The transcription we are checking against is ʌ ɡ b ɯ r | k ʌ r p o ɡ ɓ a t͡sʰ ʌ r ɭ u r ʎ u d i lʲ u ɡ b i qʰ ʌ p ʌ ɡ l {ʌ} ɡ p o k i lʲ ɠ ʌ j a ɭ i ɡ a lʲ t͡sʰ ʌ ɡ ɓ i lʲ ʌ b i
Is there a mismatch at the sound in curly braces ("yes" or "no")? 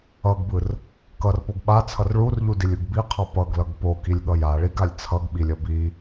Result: no